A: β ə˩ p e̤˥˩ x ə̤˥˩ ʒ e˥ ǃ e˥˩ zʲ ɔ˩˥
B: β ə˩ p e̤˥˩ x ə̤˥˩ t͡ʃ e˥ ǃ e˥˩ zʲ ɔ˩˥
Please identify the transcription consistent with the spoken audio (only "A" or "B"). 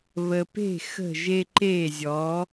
A